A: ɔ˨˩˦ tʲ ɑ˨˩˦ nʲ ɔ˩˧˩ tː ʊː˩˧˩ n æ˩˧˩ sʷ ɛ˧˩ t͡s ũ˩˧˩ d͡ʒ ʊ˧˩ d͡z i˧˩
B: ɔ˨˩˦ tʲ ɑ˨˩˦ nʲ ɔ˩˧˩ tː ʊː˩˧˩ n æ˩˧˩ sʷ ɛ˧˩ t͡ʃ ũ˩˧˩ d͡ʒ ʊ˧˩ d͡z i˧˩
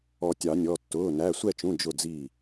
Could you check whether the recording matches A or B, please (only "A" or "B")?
B